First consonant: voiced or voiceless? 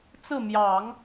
voiceless